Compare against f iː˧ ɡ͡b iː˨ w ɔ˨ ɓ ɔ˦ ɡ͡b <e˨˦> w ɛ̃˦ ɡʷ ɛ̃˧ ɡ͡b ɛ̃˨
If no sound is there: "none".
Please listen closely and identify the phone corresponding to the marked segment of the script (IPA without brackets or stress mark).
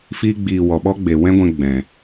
e˨